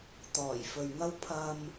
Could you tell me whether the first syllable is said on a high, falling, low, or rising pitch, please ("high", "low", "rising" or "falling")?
low